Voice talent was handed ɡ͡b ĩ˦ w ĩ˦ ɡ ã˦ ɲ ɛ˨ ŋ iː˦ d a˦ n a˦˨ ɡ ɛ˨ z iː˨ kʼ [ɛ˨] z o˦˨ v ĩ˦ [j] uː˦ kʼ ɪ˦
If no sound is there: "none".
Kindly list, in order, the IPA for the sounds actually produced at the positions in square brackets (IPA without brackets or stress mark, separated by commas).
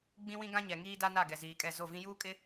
ɛ˦˨, j